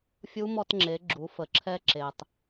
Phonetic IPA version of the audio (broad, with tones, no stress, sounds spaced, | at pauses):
fʲ u˧˥ m ɔ˧ t ŋ͡ǁ e˩˧ ɡ͡ǁ u˩˧ f ə˩ ǁʰ ɛ˧ ǁ e˩ tˤ